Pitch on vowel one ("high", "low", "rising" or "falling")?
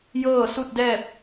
falling